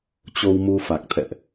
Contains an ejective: no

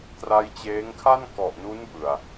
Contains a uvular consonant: no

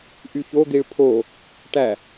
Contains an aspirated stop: yes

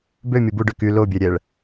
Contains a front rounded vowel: yes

